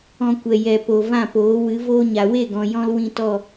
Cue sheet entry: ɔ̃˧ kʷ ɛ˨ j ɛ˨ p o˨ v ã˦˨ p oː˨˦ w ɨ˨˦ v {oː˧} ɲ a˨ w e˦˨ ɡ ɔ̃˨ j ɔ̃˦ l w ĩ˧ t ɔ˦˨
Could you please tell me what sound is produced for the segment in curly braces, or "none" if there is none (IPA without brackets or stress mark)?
oː˧